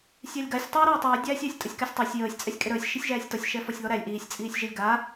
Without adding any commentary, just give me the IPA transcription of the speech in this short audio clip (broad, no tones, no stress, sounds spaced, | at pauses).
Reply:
sʲ æ lʲ ɡ a sʲ tˤ iː ɾ ɔː tˤ iː dʲ æː sʲ æː sʲ tʼ ə sʲ k æ sʲ tˤ əː sʲ j əː sʲ t͡sʼ ɛ sʲ kʼ e ɾ əː sʲ ʃ i sʲ ʒ æː sʲ t ɔ sʲ ʃ ɛ f ɔ sʲ ð ɔ ɾ æ lʲ ʔ iː sʲ t͡sʼ iː sʲ ʒ e lʲ ɡ a